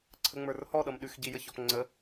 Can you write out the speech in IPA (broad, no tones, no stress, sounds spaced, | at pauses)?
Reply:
ǀʰ ə ŋ͡m ə˞ r h ɔ ɗ ʌ m ɗ ʉ x ɟ i j ə ç ɔ p ŋ͡ǀ ə